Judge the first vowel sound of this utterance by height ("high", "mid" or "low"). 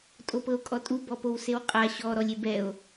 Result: mid